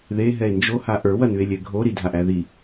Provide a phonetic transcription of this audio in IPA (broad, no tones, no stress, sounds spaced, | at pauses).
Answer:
ð e ɦ ɛ e̯ n d͡ʒ o h a ʔ ə˞ w ɐ n ʉ e̯ lʲ ɛ ɡʱ o ɾ i dʱ a ʔ æ ð i